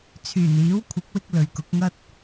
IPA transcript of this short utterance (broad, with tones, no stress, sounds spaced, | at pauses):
t͡sʰ yː˨˩ n iː˨˥ w kʷʰ ɪ˨˥ k̚ w ɪ˧ k̚ l ɵ˨ ɥ k ʊ˨˥ k̚ ŋ ɐ˥ t̚